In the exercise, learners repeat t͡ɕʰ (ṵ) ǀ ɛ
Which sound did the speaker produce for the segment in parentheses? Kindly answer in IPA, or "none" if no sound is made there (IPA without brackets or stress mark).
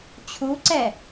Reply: u